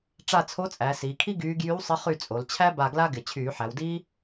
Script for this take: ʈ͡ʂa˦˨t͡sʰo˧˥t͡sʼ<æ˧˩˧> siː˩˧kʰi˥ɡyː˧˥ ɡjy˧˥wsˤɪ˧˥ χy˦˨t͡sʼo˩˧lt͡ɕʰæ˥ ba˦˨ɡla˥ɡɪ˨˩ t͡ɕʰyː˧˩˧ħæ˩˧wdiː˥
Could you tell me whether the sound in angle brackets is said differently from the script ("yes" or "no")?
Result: yes